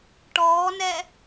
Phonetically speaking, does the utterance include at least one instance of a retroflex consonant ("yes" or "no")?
yes